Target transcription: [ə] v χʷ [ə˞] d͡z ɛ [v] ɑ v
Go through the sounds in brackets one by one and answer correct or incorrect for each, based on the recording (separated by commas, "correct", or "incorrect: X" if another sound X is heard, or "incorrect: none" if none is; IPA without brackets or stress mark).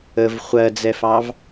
correct, incorrect: ɜ, incorrect: f